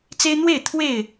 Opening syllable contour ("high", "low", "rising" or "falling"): high